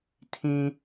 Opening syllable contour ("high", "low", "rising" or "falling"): high